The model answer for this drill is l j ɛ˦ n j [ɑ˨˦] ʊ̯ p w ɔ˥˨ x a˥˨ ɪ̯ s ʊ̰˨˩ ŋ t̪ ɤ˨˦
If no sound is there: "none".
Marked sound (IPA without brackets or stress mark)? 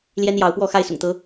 ɑ˨˦